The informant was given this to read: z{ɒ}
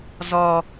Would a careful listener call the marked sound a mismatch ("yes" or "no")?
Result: no